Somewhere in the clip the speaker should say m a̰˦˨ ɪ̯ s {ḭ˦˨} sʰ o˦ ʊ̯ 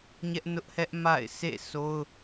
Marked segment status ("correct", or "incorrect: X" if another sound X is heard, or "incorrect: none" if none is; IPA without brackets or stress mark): incorrect: ḛ˦˨